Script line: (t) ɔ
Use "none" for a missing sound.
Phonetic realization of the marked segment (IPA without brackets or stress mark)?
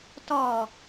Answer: t